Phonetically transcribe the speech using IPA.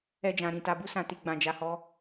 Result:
ɛ˧ d͡ʒ ã˨ ɾ ĩ˨ t a˨ b u˧ s ã˨ t i˨ ɡ͡b ã˧ d͡ʒ a˧ h ɔ˦

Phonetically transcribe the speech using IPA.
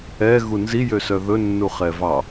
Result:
ɛ ɣ u n z i j ø s œ ð ɵ nː u χ ɛ v ɑ

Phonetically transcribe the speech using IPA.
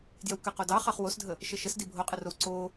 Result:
d j ə w k ə q o d ɑ χ ɑ χ w o s dʱ ə | ʃ ə ʃ ə s d i bʱ o qʼ ə r o w ǀ o

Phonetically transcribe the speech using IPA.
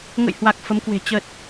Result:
ŋ ə̰˧˨ j h w a˨˩ k̚ f ə˨˦ m k w e̤˨˩ t͡ɕ ə˨˩ t̚

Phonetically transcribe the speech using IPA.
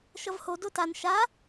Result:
ʃ ʌ v h o d o t a n ʃ a

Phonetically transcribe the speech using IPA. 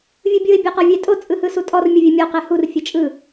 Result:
vʲ ɯ bʲ ɯ ɪ̯ bʲ a q ɔ vʲ ɛ tʼ o t͡sʼ ɯ h ɯ s u tʼ ɔ r mʲ ɯ vʲ ɛ mʲ ɔ q ɛ h u r fʲ e t͡ʃʼ ɯ

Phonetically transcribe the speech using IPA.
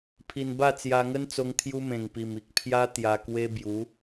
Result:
pʰ i˨˩ n b a˥˧ t͡s j a˧ ŋ ə˦ n t͡s o˧ ŋ t̪ʰ j u˦ m ẽ˨˩ ŋ p i˨˩ m i˨ k̚ pʰ j a˦ t̪ j a˧ k w e˦ b j u˨˦

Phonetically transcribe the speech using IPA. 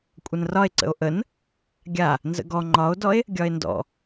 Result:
kʷʼ ə n r ɒ e̯ ǀ ə̰ o̯ ʔ ə n | ɡʲ a | n z ə̰ ɡ ɔ ŋ͡ǃ ɒ o̯ d ɔ e̯ | ɡʲ ɒ e̯ n d ɔ̰

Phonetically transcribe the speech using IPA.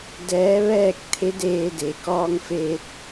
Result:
d ɛː˧˥ ʋ ɛː˥˨ k̚ t̪ʰ e˧˥ d eː˧ d e˩ k ɔː˧ ŋ f eː˧ t̚

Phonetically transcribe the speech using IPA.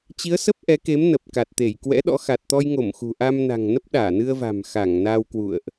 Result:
t͡ɕ i˨˦ ə̯ s ə˦˥ p̚ ʔ ɛ˨˦ k e˨˦ m n ə˨˩ p̚ k a˨˩ t̚ t̪ e˧˩ j k w ɛ̰˧˥ ɗ ɔ̰˧˥ x a˨˩ t̚ t̪ ɔ˧ j ŋ o˧˩ m x ṳ˨˩ ʔ a˧ m n a̤˨˩ ŋ n ə˦˥ p̚ ɗ aː˧˩ n ɨ˧ ə̯ v a̤˨˩ m x a˧˩ ŋ n a˧ w k w ṵ˧˨ ə̯ ʔ

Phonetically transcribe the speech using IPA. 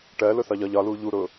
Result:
ʈ ɜ l ʊ θ ɒ ʎ ɒ ʎ ɒ l uː ʎ u ɾ ʊː

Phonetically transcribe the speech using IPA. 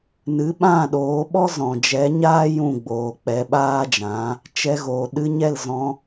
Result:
n ɨ˨˦ ɓ ã˦˨ ɗ oː˨˦ ɓ ɔ˦ z ɔ̃˨ d͡ʒ ɛ˨˦ ɲ aː˦ j ũ˦˨ ɡ͡b oː˨ k͡p ɛ˧ ɓ aː˦ d͡ʒ ã˨˦ | t͡ʃ ɛ˧ ɣ oː˨ ɗ ɨ˧ ɲ ɛ˦˨ l z ɔ̃˧

